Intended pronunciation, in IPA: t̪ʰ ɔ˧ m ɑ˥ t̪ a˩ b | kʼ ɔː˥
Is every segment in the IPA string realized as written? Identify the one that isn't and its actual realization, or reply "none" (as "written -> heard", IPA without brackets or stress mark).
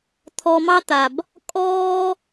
none